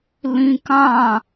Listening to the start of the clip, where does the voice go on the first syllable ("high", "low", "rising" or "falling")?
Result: high